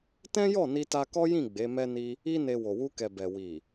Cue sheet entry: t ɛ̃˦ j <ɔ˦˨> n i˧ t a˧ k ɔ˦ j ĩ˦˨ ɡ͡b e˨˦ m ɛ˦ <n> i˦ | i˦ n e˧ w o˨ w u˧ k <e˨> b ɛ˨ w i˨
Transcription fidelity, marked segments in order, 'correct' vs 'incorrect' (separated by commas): correct, correct, incorrect